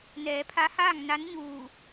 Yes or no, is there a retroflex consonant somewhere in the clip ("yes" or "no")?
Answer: no